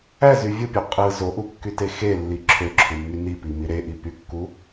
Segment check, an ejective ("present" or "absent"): present